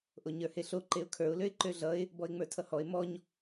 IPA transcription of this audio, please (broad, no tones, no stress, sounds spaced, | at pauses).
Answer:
ʔ o ɲ ə˞ h e ɬ o ǃ e ʊ̯ kʰ ə˞ ʊ̯ l ø ɪ̯ ǃ ø ɮ ʌ ɪ̯ | b ɔ ɪ̯ ŋ͡m ə˞ tʰ ʌ h ɔ ɪ̯ m ɔ ɲ